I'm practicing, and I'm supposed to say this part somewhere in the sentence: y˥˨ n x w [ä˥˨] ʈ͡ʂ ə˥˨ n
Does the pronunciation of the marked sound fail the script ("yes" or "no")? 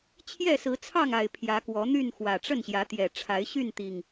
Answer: yes